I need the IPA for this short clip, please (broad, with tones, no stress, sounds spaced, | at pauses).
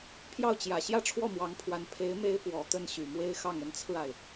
pʰ j ɑ˥˩ ʊ̯ t͡ɕ j ä˨˩ ɕ j ä˥˧ ʈ͡ʂʰ w ɔ˥˩ m w ɑ˧˥ ŋ pʰ w a˧˥ n pʰ e˧˥ ɪ̯ m e˥ ɪ̯ p w ɔ˨˩ t̪ ə˥˩ n ɕ y˨˩ m w e˥ ɪ̯ x ɑ˥˩ ŋ ə˧˥ n t͡sʰ ɹ̩˧ a˩ ɪ̯